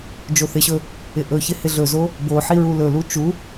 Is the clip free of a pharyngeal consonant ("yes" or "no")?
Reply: no